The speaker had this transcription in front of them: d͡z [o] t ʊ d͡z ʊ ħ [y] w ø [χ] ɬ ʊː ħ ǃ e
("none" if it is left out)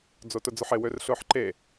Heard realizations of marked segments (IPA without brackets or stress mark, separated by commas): o, e, r